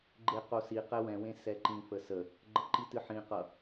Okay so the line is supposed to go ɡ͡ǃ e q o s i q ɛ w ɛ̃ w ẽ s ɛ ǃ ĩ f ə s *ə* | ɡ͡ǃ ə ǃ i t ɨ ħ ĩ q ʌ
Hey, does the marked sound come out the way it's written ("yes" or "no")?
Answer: yes